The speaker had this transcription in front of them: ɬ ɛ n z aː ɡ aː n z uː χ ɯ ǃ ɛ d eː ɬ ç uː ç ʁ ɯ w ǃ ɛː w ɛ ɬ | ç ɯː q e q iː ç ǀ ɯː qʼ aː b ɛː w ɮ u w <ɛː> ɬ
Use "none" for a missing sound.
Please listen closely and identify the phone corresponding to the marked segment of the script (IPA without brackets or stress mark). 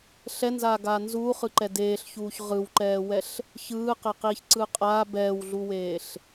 eː